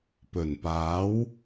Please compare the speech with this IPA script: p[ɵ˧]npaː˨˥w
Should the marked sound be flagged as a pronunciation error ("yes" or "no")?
yes